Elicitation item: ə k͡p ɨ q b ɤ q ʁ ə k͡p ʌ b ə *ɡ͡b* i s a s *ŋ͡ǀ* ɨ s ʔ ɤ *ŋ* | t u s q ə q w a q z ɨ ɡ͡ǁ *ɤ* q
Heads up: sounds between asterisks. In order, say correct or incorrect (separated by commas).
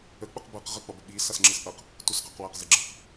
incorrect, incorrect, incorrect, correct